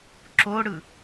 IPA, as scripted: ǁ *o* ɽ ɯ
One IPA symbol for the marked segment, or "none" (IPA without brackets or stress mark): o